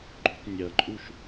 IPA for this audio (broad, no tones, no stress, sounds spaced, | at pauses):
ɡ͡ǃ o̤ tˤ nʲ ɐ ǃʼ u ʃ